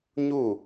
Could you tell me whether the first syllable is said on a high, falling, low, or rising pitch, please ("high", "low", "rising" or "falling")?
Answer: falling